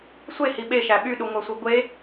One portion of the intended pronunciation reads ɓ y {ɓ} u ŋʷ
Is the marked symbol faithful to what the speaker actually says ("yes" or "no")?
no